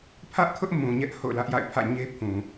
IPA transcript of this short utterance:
pʰ ä˦ ʔ kʰ ʊ˦ ʔ m ũ˨ ɲ ɛ˦ ʔ h o̰˦˨ ʊ̯ l ä˦ ʔ j a̰˦˨ ɪ̯ pʰ ä̰˦˨ ɲ e˦ pʰ ũ˨

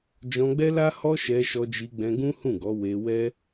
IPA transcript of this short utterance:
d͡ʒ ɔ̃˧ ɡ͡b ɛ˦ l a˦ h ɔ˦ ʃ ɛ˧ ʃ ɔ˧ d͡ʒ i˧ ɡ͡b ɛ̃˧ ɡ ũ˦ h ũ˦˨ ɡ ɔ˨˦ w e˧ w ɛ˦

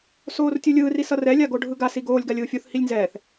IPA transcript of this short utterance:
s oː r tʲ u lʲ ɯː r i s ʌ r ɛ lʲ a ɡ o ɖʱ ɯ ɡ a s i ɡ oː lʲ ɡ a lʲ ɯː fʲ u θ h i lʲ n z ɛː θ

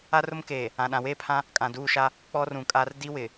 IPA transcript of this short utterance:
a˦ r ʊ˦ m k eː˨ | ã˨ ɗ ã˨ w eː˦ pʰ ã˦ | kʼ ã˨ d uː˦˨ ʃ a˦ | k͡p ɔ˦ r ũ˨ kʼ a˦ r d i˦ w ɪ˨

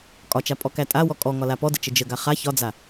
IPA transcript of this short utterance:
kʼ ɒ t͡ʃ a pʼ ɔ k æ tʼ a w ɔ kʼ ɔ ŋ ɒ l a p ɔ d ə t͡ʃ ə d͡ʒ ə ɡ a χ a ç ɒ d͡z a

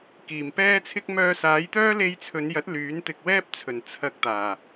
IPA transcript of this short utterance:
k iː˨˩ m p ɛː˥ t͡sʰ ɪ˥ k̚ m œː˧ s aː˨˥ j t̪ œː˥ l e˧ j t͡sʰ ɵ˨˧ n j ɐ˨˥ t̚ l yː˨˥ n t̪ ɪ˧ k̚ w ɛː˥ p̚ t͡sʰ ɵ˨˩ n t͡sʰ ɐ˧ k̚ t̪ aː˨˩

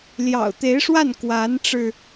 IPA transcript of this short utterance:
l j ɑ̰˨˩ ʊ̯ t̪ e˧˥ ɪ̯ ʂ w a˥˩ n k w a˧˥ n ʈ͡ʂ ɻ̩˧

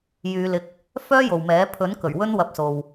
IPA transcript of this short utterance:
j yː˨˧ l ɪ˧ k̚ | f œː˥ j o˨ w m ɛː˨˥ pʰ ɵ˨˥ n k ɵ˨˩ ɥ w ɵ˥ n w ɐ˧ p̚ s o˨ w

